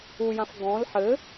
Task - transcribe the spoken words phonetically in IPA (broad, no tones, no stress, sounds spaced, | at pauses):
u j ã f ɡ ɔ̃ l ħ ɘ